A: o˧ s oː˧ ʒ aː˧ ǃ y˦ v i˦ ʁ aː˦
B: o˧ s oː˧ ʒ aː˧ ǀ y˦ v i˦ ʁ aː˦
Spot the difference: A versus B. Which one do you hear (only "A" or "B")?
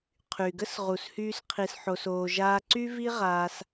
B